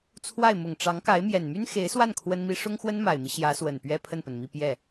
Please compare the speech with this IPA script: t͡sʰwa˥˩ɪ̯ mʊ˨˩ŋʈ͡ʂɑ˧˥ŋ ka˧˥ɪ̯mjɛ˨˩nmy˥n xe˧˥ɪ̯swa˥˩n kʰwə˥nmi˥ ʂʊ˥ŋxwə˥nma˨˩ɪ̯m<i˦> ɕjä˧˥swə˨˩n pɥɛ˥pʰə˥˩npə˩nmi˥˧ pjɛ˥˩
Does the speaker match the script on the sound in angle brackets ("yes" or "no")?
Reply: yes